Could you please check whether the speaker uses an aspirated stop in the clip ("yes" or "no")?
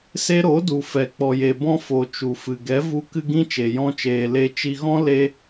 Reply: no